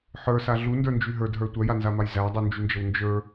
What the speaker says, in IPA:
ħ ə˞ s a ɮ u n d ə˞ n d͡ʒ y ɦ ə˞ d ɦ ə˞ tʷ œ j a n z a m a j z æ dˤ u n d͡ʒ y n d͡ʒ ə w n d͡ʒ ə˞

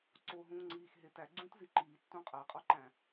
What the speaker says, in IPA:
ǀ o ɦ ũː ŋ͡ǀ iː x ɦ e t æ ɡ͡ǀ ũː t z i ǃ iː tː ũ qʼ æ qʼ ɒ ǃ æ̃

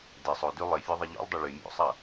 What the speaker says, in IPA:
d ɪ sˤ o d y lˠ ɪ fʲ o ðˤ ɪ ʎ o̰ lˠ dˤ ɐ ɭ y mʲ o̰ sˤ ɐ

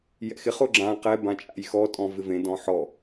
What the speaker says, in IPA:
j ɛ̰ x ɪ χ ʊ ɡ͡ǁ ã q ɛ b ã t͡ʃʼ a̰ j x ɔ tʼ ɔ̃ v ɪ v ẽ d ɔ̃ ħ ɔ

